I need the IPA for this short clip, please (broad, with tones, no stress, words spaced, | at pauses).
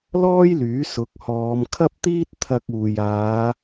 lɔː˥jlyː˨˥ sʊ˨˥k̚hɔː˨˧m kʰɐ˥p̚t̪iː˥t̚ t̪ʰɐ˧k̚uː˨j aː˨˧